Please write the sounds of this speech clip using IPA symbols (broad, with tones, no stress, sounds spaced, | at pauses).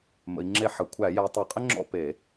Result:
m ə̰˨˦ i̯ ŋ͡ǁ e˥˨ ħ ə˧˩˧ kʷʰ æ˧˩˧ j æ˨˦ tˤ e˧˩˧ qʼ ɪ˥ ŋ͡ǁ ɔ̰˥˨ p e˧˩˧